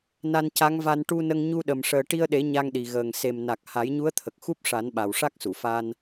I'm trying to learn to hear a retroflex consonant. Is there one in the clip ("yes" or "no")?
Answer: yes